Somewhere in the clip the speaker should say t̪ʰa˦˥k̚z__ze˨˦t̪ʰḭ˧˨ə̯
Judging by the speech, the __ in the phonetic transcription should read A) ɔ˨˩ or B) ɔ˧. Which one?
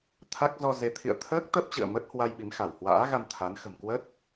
B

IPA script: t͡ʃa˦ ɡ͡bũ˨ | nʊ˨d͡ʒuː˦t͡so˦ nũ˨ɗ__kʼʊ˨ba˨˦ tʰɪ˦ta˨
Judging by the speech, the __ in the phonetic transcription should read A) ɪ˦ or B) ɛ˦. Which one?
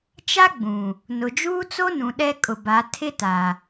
B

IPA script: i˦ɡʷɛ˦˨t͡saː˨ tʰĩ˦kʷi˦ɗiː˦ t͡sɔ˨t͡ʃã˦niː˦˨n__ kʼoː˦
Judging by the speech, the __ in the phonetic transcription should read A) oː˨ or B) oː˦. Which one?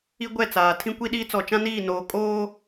A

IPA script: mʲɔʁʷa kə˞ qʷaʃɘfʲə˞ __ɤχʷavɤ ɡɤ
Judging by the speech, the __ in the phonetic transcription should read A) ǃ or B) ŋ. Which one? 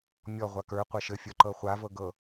A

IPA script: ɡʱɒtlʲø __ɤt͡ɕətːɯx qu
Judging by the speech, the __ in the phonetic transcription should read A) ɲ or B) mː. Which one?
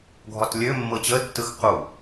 B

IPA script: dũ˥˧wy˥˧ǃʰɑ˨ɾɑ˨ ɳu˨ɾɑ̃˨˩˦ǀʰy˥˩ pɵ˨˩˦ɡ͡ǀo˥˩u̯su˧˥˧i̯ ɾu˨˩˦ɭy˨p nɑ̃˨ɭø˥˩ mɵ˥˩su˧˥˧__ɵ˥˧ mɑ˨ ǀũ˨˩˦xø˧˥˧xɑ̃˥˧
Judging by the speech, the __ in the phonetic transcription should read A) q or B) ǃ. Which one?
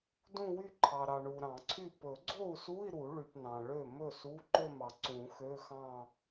B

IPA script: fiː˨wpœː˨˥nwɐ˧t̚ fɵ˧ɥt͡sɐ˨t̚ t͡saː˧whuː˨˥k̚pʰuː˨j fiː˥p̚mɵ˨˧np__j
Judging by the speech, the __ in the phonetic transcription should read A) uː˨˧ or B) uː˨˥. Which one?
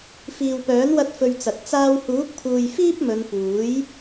B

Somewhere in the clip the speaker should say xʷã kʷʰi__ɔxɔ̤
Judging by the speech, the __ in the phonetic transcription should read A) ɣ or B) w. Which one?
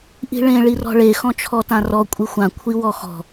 B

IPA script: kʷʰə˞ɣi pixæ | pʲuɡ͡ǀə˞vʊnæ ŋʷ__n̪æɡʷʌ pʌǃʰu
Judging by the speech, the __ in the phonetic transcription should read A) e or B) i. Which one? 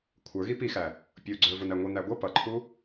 B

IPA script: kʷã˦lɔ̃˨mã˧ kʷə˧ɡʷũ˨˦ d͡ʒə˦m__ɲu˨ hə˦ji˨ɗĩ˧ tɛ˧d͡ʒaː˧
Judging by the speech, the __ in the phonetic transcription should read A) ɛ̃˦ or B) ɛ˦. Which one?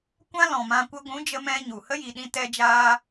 A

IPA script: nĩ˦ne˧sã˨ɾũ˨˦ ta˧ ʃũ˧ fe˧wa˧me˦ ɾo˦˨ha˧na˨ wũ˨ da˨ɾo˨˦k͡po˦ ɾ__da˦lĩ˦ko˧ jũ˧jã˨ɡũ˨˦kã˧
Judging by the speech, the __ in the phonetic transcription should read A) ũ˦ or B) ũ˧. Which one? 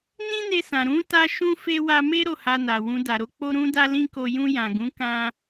A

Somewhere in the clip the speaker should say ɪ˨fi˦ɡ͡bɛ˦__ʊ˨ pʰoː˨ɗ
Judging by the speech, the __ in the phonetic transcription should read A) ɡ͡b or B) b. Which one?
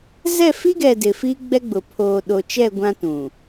A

